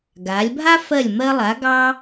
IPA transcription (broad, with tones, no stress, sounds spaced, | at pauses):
ɡ a˩˧ lʲ bʱ a˥ f ɜ˧˩ lʲ m ɜ˧ lˠ a˩˧ ɡ ɑ˥